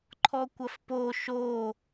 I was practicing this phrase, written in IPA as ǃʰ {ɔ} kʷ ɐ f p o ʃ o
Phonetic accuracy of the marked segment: correct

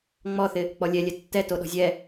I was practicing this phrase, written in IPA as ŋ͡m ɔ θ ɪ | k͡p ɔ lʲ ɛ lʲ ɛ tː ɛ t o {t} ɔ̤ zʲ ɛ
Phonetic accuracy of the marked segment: incorrect: ɗ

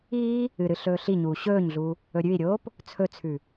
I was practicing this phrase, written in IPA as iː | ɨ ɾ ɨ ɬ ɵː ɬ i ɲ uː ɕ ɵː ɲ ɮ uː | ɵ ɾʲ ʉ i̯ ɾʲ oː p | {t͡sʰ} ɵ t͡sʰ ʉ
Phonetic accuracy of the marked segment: correct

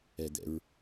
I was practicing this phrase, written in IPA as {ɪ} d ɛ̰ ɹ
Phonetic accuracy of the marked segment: incorrect: ɛ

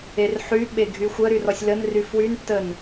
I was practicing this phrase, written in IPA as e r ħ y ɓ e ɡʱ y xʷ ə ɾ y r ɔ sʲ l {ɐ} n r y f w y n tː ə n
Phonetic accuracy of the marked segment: incorrect: ə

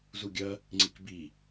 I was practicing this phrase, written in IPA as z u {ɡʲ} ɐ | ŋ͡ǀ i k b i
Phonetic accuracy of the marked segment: correct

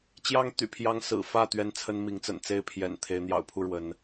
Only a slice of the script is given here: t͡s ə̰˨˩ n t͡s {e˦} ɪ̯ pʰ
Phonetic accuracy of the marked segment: incorrect: e˥˨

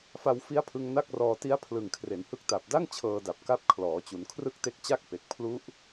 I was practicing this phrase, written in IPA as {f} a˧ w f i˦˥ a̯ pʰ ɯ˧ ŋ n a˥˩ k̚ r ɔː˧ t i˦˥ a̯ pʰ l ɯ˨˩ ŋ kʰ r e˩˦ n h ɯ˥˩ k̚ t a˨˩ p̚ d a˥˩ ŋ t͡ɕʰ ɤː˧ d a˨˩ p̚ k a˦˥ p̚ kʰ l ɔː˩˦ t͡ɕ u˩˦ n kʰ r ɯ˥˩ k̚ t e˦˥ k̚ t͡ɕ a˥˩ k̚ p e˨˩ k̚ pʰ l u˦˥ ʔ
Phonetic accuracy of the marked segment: correct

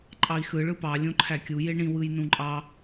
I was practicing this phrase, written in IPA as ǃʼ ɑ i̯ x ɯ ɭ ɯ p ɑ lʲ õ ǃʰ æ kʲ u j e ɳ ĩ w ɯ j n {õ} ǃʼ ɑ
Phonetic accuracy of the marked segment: incorrect: ũ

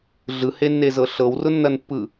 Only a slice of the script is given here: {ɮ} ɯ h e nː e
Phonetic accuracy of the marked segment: correct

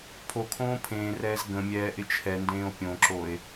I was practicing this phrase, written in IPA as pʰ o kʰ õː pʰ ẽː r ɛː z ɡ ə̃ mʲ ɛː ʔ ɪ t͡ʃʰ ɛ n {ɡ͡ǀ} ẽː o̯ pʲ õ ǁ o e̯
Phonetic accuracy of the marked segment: incorrect: d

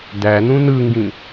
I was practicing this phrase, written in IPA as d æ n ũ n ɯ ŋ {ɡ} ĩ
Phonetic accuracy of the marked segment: correct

